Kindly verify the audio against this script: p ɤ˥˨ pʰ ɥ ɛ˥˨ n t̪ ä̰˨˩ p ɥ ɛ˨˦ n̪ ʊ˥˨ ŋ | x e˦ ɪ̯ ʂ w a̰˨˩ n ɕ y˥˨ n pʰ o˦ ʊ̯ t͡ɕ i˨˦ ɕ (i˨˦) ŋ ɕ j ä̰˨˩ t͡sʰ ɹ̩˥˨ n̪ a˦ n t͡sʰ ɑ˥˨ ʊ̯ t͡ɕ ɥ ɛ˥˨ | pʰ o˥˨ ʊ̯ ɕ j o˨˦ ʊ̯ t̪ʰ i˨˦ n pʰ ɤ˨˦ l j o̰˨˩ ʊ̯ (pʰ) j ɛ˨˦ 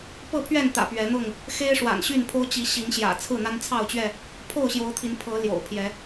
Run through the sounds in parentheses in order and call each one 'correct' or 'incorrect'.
correct, correct

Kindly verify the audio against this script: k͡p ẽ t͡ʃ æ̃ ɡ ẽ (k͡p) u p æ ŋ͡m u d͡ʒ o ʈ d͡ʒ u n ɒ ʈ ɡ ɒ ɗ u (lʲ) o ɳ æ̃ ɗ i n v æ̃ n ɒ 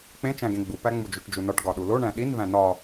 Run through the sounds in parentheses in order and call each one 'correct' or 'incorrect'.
incorrect: ɡ͡b, incorrect: l

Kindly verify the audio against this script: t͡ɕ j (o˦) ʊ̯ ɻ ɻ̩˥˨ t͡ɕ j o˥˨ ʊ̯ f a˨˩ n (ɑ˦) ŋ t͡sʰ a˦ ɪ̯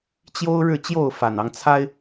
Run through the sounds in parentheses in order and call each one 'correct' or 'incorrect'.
correct, correct

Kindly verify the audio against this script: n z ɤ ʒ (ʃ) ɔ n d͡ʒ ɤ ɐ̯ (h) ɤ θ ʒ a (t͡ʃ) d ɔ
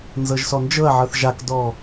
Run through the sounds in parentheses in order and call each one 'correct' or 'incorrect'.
incorrect: s, incorrect: ʕ, incorrect: k

